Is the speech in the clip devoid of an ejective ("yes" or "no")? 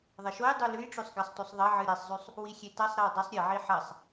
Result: yes